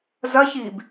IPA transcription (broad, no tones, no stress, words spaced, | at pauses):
zɐçiːb